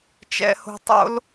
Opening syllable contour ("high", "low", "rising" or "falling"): high